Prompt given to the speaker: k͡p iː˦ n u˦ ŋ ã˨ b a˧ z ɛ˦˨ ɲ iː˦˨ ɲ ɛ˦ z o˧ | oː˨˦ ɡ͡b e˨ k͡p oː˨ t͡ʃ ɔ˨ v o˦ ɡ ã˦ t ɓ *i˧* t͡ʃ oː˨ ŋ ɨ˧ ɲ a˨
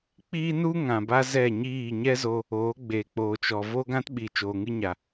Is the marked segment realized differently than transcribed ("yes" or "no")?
yes